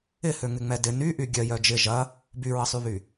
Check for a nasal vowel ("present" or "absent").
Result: absent